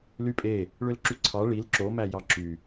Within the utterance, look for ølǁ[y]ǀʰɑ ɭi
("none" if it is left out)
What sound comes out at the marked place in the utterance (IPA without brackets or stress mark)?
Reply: y